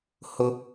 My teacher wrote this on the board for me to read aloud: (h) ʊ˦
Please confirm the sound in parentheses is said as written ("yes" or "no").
yes